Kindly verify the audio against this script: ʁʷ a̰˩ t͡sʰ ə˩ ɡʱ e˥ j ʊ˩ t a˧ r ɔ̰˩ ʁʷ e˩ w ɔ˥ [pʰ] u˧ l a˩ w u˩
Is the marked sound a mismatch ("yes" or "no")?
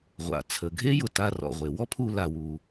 no